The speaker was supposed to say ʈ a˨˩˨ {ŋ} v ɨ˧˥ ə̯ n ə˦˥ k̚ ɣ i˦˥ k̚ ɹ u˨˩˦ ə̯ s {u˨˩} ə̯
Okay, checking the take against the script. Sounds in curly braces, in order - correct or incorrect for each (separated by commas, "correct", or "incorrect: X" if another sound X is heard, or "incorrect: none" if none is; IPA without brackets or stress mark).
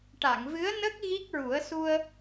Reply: correct, incorrect: u˧